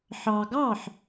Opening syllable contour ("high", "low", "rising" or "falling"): low